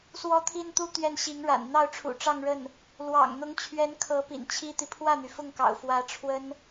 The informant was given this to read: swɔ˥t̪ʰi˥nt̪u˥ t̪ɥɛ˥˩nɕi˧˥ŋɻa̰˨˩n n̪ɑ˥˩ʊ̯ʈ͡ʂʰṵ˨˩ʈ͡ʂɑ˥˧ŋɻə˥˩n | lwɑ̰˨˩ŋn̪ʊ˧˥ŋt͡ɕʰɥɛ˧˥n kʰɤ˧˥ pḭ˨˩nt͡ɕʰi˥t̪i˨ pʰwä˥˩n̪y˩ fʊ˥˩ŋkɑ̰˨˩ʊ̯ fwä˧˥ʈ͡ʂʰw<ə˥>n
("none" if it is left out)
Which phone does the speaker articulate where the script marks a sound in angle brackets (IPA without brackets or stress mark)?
ə˥